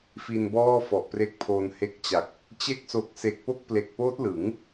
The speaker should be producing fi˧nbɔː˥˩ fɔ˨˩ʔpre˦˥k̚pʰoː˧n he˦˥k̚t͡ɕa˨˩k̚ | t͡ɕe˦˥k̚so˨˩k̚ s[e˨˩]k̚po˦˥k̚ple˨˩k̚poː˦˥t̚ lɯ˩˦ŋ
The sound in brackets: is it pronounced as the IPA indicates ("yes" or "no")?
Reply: yes